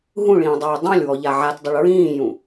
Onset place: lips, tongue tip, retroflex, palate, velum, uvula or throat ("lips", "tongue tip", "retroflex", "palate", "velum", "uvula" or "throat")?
throat